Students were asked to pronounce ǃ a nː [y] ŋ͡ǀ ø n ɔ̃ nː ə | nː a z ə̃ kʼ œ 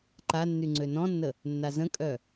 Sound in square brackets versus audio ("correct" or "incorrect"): correct